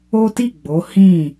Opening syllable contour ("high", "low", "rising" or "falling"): high